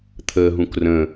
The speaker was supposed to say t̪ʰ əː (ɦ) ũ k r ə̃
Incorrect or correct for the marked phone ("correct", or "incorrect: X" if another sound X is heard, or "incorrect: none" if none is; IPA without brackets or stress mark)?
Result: correct